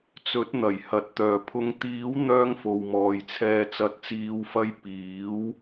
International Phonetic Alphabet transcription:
t͡s ɵ˨˥ t̚ n̪ ɐ˨˩ j h ɐ˨˥ t̚ t̪ œː˨ pʰ ʊ˧ ŋ t̪ iː˨˥ w n̪ œː˥ ŋ f o˨ w m ɔː˨ j t͡sʰ ɛː˨ t͡s ɐ˨ t̚ t͡s iː˨˧ w f ɐ˧ j p iː˨˥ w

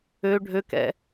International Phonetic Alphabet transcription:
ø ɖʱ ø k ɛ̰

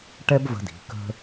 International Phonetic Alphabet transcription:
ʈ ɛ˥ b v ə̤˧ d i̤˩˧ k ə̤˧

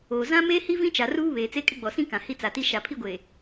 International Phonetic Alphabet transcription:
oː˨ z ã˦ m eː˦ h i˦ v ĩ˦ t͡ʃ a˨ r uː˦ β eː˨ t͡s e˦ kʼ ɪ˦ ɡ͡b ɔ˨ s ĩ˦ k ã˨ h i˦ t͡s a˨ t i˦ ʃ a˨ pʰ i˦ ɡʷ e˨

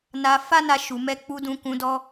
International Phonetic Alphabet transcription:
n a˧ f a˦ n a˧ ʃ u˨ m ɛ˧ k͡p u˧ d ũ˧ k ũ˧ d ɔ˦

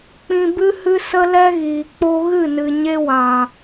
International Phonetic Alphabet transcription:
k͡p ĩ˧ b ɨ˦ h ɨ˦ s ə˦ l ɛ˦ ɣ iː˨ k͡p o˦ ɣ ɨ˦˨ n ɨ˨ ɲ e˦ w ã˨

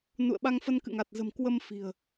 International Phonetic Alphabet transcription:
n ṵ˧˨ ə̯ ɓ a˧ ŋ f ə˧ n k ɨ̰˧˨ ŋ a˨˩ t̚ z ə̤˨˩ m k w ə˧ m f i̤˨˩ ə̯

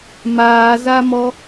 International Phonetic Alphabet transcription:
m aː z a m ɔ

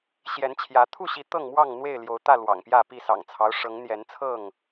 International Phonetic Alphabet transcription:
ɕ j ɛ˨˦ n t͡ɕʰ j ä˨˦ t̪ʰ u˥˨ ɕ i˨˦ t̪ ɤ˥˨ ŋ m w ɑ˥˨ ŋ n̪ w e˥˨ ɪ̯ l j o˨˦ ʊ̯ t̪ ä˥˨ l w ɑ̰˨˩ ŋ p j ä˥˨ p i˥˨ s ɑ̰˨˩ ŋ t͡sʰ ɑ˦ ʊ̯ ʂ ɤ˨˦ ŋ n̪ j ɛ˨˦ n t͡sʰ ɤ˥˨ ŋ

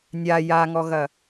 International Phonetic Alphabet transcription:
nʲ a j a ŋ ɔ ɣ ɐ

